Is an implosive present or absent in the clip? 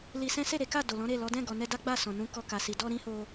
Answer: absent